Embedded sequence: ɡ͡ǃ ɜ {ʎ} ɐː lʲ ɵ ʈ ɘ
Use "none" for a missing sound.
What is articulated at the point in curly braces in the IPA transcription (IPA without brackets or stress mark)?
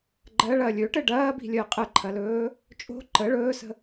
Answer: ɭ